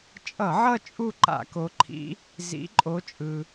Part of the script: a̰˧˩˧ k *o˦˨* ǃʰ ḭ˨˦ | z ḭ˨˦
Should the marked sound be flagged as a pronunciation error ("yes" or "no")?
yes